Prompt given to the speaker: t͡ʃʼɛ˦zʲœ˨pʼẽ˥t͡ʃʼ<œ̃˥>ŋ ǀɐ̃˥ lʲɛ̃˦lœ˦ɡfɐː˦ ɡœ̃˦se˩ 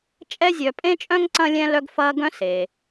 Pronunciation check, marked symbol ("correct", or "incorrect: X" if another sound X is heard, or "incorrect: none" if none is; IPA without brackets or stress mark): correct